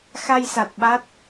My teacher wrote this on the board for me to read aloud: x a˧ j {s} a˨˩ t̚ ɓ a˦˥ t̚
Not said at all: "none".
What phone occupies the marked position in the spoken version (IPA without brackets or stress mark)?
s